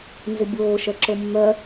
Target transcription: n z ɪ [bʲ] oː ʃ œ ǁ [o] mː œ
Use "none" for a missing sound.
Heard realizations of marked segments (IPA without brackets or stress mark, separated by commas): bʲ, o